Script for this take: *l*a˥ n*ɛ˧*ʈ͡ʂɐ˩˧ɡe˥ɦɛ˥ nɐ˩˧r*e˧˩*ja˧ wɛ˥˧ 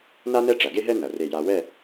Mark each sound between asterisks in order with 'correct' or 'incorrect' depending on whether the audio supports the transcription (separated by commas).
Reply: incorrect, incorrect, correct